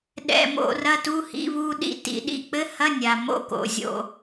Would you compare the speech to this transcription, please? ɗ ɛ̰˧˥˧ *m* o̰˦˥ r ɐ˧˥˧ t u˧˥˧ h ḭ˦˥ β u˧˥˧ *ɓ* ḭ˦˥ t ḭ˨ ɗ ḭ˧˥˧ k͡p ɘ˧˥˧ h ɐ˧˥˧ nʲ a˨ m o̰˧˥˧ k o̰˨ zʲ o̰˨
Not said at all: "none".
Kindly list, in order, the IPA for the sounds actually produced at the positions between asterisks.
m, ɗ

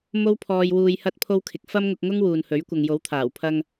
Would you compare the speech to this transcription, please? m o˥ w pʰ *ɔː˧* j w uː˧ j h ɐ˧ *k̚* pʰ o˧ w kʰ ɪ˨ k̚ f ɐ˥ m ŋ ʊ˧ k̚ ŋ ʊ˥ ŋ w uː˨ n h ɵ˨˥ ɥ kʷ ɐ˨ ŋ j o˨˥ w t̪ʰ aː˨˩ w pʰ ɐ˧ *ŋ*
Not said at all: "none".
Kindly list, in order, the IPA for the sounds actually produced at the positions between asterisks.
ɔː˧, t̚, ŋ

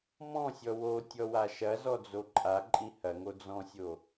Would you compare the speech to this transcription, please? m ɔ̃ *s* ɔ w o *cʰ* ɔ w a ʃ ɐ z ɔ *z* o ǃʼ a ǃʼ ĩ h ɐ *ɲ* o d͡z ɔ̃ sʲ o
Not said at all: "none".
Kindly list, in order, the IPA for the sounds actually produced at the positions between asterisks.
sʲ, tʲ, d͡z, ŋ

